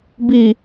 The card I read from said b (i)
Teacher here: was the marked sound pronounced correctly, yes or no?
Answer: yes